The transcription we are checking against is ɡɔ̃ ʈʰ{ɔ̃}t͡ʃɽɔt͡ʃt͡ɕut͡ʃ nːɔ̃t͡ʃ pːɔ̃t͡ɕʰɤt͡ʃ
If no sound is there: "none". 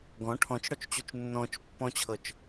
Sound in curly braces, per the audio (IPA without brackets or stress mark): ɔ̃